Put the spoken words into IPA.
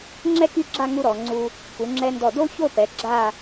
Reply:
ŋ͡ǁ ɛ˥ k y˥˧ ɡ͡ǁ a˥˧ ŋ u˧ ɾ ɔ˩˧ ŋ͡ǀ u˧ | k u˩˧ ŋ͡ǁ ɛ˧ n d ɔ˧˩ d o˥ ç o˥˧ p ɛ˩˧ ɡ͡ǁ a˥˧

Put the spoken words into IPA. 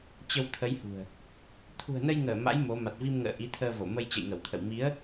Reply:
t͡ɕ ə˧ w t̪ʰ ə˨˦ j h ṳ˨˩ ə̯ | t̪ʰ ṳ˨˩ ə̯ n ə˧ j ŋ əː˧˩ m a̰˧˥ j m o˨˦ m a˨˩ t̚ v i˧ m ŋ ə̰ː˧˨ ʔ i˨˦ t̪ʰ əː˧ v o˧˩ m ə˧ j t͡ɕ ə̰˧˨ j ŋ ə˧˩ w t̪ʰ ə̰˧˨ w m i˨˦ ə̯

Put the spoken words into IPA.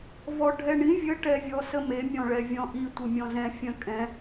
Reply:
v ɔ ɖʱ ɛ ɳ ĩ vʲ ə ʈ ɛ vʲ ɔ s ə m e mʲ ɔ̃ ɭ ɛ vʲ ɔ̃ ʔ i tʷ ə mʲ ɔ̃ z ɛ̃ fʲ œ̃ kʼ ɛ̃

